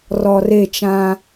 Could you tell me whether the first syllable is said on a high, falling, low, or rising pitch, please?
low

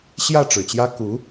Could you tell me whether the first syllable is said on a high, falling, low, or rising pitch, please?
falling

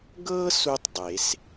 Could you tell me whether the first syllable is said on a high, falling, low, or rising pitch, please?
high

